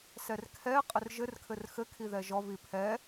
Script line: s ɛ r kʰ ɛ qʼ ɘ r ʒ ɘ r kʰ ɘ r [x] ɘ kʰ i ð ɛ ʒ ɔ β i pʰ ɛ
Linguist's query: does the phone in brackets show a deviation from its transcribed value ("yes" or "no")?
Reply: no